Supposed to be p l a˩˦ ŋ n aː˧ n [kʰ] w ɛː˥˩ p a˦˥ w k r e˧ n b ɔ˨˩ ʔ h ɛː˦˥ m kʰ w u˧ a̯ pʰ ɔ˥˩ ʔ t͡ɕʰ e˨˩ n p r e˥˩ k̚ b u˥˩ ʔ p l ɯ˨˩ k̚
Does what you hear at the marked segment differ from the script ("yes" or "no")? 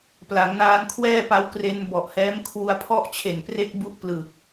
no